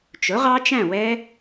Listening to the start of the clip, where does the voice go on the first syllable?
rising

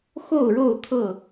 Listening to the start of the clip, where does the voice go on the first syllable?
falling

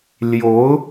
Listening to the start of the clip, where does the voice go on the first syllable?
rising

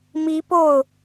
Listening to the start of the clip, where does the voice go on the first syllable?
rising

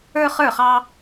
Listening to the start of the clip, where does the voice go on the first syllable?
high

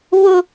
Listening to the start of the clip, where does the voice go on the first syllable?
high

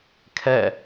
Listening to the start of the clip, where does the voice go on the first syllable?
falling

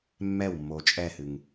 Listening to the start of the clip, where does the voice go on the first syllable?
falling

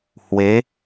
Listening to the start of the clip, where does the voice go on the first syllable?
rising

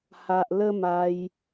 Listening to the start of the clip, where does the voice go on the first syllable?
low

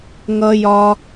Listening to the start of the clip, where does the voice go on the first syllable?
high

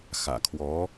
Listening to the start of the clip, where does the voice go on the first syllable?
low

